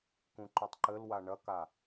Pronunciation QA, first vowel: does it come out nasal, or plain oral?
nasal